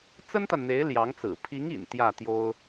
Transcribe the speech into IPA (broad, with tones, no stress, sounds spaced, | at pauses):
t͡s ə˥ n t̪ a˨ n n̪ e˧˥ ɪ̯ l j ɑ˧˥ ŋ t͡s ɹ̩˨˩ pʰ i˧˥ ŋ ḭ˨˩ n t̪ j ä˥˩ t̪ j o˥ ʊ̯